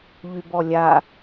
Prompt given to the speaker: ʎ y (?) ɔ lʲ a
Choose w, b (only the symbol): b